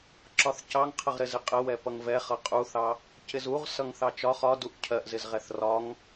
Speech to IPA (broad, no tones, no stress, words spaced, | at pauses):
ǁɒθcɑŋqʰəʁɾɪ zɪqʼəwɛ pʌŋvɛχʌ qʼuθɑ | cɪzuʁsʌŋθɑ t͡ʃɒ χɒduʔ cʰɜʔzɪzʁɛθ rɒŋ